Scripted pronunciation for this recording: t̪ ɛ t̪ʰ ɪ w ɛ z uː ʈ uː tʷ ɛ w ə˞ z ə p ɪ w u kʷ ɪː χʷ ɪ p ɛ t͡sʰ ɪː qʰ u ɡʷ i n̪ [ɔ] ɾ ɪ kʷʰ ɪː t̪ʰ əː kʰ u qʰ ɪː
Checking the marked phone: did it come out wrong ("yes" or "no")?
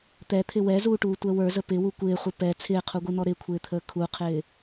no